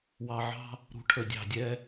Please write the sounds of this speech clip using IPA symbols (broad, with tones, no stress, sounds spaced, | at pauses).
w ɑ˨ ʕ ɑ̤˦ | ɾ ṳ˨ ʈʰ ə˨ dʲ ɑ̤˨ dʲ ɛ˦